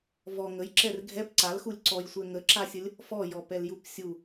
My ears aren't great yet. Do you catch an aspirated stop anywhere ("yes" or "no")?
no